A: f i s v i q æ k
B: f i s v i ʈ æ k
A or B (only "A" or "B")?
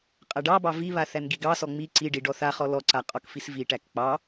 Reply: B